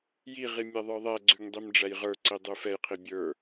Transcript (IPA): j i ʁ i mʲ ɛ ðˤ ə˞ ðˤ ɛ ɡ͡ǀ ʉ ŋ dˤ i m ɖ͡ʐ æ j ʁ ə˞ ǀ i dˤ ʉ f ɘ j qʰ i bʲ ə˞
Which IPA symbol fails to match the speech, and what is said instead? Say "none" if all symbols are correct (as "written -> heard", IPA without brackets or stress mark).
ɘ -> ɛ